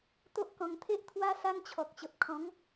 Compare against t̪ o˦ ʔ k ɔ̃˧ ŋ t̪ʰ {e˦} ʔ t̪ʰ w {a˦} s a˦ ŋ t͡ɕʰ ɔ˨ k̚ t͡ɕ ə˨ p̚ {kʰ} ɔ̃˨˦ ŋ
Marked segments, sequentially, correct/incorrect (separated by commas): correct, correct, correct